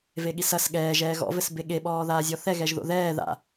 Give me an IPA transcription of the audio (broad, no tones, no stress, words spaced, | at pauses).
veɠisɐs ɠɛːʒɛː ɣɔ̰vɘs beɠeɓɔː ðaːzʲɔθɛɣɛʒ ðo̰ðɛː ða̰